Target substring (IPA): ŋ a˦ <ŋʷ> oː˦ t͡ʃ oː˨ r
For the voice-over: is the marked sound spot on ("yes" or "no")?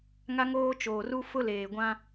no